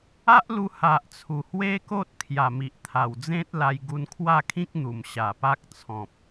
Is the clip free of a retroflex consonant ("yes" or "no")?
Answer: yes